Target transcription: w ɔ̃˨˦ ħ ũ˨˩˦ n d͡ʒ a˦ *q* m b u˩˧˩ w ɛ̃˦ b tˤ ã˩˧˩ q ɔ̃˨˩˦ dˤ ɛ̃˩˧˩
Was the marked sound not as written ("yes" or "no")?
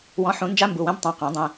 yes